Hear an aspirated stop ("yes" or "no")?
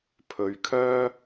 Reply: yes